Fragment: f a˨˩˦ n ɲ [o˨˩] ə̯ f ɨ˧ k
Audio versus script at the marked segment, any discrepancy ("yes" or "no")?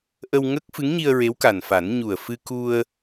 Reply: yes